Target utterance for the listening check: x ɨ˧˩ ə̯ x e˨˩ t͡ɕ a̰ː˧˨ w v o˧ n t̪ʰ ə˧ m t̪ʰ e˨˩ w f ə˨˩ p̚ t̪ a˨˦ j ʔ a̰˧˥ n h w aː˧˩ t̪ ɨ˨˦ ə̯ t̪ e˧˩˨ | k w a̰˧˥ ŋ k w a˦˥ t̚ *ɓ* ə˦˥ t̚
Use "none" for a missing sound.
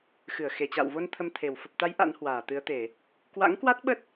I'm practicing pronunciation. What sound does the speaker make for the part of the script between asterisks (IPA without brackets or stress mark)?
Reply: ɓ